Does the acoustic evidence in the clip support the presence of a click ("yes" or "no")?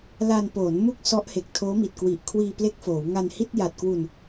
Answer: no